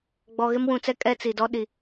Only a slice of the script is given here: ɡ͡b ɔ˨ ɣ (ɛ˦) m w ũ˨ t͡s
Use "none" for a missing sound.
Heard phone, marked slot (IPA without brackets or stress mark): ɪ˦